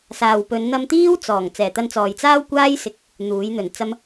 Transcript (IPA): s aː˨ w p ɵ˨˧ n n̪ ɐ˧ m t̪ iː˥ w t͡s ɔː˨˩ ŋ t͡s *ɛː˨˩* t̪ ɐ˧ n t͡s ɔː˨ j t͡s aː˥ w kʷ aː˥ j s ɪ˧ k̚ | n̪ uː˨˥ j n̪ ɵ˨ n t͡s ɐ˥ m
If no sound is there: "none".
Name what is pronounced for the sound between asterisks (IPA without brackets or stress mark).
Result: ɛː˨˩